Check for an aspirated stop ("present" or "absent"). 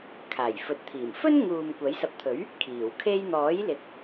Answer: present